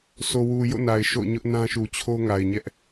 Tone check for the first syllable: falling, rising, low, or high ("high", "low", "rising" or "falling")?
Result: low